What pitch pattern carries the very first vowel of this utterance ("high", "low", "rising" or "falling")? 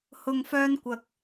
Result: low